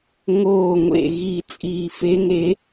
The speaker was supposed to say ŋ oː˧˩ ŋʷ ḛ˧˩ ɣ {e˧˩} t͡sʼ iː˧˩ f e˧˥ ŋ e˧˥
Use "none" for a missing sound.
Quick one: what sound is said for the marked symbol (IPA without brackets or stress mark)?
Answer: i˧˩